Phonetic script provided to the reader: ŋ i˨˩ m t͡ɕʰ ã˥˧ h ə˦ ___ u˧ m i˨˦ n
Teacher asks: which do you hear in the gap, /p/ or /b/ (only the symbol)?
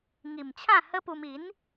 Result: p